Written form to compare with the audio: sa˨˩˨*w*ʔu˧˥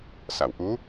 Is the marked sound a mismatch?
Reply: no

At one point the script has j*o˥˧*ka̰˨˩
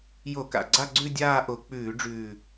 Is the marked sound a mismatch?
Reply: yes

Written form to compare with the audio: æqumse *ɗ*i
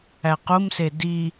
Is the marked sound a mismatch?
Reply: yes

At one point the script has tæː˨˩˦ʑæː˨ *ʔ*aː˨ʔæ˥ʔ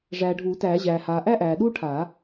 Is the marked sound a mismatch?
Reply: yes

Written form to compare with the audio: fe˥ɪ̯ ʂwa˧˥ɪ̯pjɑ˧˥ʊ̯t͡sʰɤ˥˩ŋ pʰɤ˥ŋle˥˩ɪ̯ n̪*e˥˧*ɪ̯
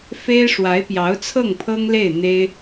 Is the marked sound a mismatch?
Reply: yes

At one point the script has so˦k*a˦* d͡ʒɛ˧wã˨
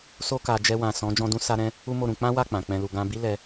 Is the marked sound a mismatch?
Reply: yes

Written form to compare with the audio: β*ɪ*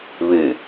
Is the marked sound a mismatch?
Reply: yes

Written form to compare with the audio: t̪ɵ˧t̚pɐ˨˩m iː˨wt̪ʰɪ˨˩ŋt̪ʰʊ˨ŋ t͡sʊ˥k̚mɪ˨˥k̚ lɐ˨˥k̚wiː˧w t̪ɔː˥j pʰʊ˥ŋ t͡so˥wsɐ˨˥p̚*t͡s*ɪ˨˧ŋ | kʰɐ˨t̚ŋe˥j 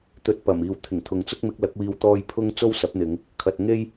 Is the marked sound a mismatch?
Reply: yes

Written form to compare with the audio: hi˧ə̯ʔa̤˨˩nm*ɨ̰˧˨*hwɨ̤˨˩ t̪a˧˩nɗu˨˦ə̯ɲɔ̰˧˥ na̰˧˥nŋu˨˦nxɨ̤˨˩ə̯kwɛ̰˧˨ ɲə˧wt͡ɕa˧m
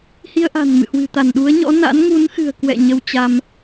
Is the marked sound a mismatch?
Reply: no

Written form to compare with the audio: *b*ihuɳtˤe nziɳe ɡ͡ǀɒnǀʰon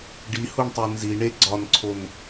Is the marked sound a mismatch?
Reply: yes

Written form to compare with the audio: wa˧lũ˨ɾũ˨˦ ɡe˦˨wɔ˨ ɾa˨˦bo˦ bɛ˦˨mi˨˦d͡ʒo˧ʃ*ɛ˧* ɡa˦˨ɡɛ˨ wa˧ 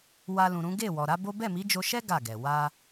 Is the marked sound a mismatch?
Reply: yes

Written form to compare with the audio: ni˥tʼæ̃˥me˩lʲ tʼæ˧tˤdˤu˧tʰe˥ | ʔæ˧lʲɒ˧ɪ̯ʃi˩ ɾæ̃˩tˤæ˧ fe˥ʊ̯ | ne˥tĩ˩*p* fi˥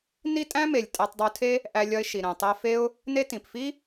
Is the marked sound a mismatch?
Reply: no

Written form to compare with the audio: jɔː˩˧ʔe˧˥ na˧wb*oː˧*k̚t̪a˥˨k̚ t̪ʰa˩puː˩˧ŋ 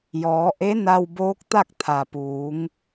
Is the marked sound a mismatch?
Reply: yes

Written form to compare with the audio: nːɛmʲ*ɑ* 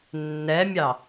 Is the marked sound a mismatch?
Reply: no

